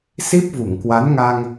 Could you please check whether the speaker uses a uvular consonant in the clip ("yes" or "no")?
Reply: no